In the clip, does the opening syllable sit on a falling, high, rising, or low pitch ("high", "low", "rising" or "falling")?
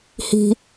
low